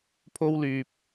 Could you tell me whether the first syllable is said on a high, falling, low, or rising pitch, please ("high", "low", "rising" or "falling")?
high